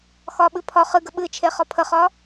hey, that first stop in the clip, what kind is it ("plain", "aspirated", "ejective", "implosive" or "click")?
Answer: implosive